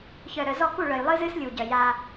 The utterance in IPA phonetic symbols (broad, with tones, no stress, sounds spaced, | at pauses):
ç œ˨ ɾ œ˨ z ɔ˦˨ k u˦˨ ɭ œ˨ j lˠ ɨ˦ z ɨ˦ s lʲ u˨ ɟ œ˨ j a˦